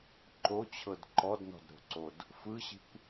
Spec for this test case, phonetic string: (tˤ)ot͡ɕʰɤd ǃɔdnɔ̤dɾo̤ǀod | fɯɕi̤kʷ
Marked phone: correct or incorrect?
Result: incorrect